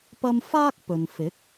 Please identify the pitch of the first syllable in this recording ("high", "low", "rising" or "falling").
high